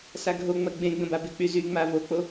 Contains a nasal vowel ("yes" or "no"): yes